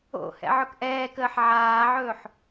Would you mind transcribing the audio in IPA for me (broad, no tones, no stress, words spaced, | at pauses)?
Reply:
o̰ hɛ̰ʕɵkʔɛːkəːħ ʕaːʕɵːħ